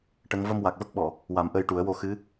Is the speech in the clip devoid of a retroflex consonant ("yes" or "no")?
no